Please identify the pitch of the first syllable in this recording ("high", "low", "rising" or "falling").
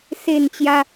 falling